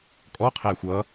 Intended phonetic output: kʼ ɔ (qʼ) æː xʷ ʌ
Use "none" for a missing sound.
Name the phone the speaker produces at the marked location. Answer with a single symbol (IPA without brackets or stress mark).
qʰ